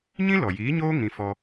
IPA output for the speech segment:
ɲĩ˦lɔ˨jiː˨˦ɲoː˦ ŋĩ˧fɔ˧

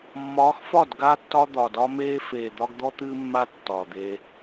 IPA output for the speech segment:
mːɒː˨˦xfɒ˦˨d ɡa˦tːɒ˦d̪ɒ˨dɒ˦ meː˦feː˨d̪ɒ˦ɡ d̪ɔ˦t̪ɨː˦ mːa˦ tːɒː˨d̪eː˦

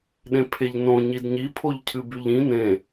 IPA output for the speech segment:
ɗẽpʰeʎnõ ɲidɲi pʰoʎcʰɨbyʎĩ nẽ

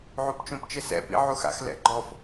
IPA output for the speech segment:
ʕupt͡ʃõpt͡ʃɘsɛ̰ pḭʕuxa̰x lɛ̰ɡ͡ǃɔf

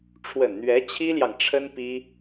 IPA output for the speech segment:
ʈ͡ʂʰwə˨˩nn̪ɥɛ˧˥ t͡ɕʰi˥ljɑ˨ŋ ʈ͡ʂʰə˥npi˥

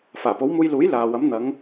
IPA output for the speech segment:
faː˨˩po˨˥wmuː˧jluː˨˥j laː˨wɐ˨˥m n̪ɐ˨˧ŋ

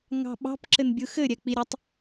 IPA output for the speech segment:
ŋɑ̤ɓɑ̤p ǁɘnbʲɯxɘ ɾʲɛk͡piɾʲɐtˤ

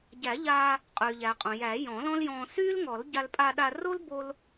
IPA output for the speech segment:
ɟæ˨˩˦ʎaː˧ | qʼyː˩ʎæ˩qʼõ˩ jæ˨˩˦jɔ̃˨˩˦lɔ̃˥ljɔ̃ː˧ syː˥lŋɔ˨˩˦lɟa˧l pʼa˧ɗa˧ro˥l bo˥l

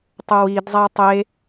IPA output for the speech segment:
tˤowid zˤætˤe

